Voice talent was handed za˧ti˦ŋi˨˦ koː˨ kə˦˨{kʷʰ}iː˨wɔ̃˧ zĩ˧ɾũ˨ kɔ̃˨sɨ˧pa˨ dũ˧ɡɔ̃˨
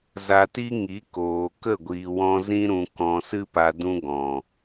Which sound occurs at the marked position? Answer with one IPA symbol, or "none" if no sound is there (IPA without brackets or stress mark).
ɡʷ